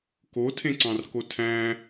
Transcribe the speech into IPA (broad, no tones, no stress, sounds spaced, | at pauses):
k o tʰ ẽ ǀ ɑ̃ r k o tʰ æ̃